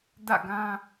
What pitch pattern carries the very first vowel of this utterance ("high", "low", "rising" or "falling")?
falling